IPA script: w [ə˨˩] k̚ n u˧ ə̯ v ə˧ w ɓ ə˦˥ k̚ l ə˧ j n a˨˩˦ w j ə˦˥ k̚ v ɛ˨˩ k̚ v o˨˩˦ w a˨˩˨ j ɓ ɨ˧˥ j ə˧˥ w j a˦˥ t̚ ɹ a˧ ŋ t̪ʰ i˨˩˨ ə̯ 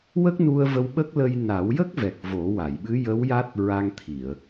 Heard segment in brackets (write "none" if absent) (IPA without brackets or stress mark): ə˦˥